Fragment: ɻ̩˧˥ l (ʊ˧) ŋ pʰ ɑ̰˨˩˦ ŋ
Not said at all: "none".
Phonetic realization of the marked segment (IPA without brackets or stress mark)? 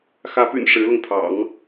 ʊ˧